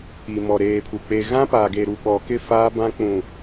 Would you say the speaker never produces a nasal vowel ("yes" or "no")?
no